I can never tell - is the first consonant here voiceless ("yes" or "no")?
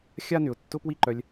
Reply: yes